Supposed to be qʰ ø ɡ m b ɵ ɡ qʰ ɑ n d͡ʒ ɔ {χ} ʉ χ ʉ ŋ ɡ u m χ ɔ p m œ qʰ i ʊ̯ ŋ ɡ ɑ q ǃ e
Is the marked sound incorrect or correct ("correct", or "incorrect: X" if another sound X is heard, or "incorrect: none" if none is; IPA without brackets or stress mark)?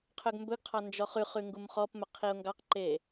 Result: correct